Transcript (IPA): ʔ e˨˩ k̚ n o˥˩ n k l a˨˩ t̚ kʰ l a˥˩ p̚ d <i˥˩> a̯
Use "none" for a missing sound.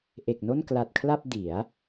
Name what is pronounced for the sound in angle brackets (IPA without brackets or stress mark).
i˩˦